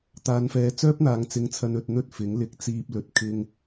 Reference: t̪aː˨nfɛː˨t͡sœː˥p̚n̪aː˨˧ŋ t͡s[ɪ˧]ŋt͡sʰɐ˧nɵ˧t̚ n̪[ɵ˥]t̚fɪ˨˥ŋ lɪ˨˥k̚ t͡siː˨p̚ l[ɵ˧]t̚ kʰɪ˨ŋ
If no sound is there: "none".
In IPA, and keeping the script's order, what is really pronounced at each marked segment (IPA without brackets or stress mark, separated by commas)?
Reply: ɪ˧, ɵ˥, ɵ˨